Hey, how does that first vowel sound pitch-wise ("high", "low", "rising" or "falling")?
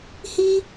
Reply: high